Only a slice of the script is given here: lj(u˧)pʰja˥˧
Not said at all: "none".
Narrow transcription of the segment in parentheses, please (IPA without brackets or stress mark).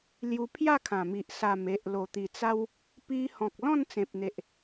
u˧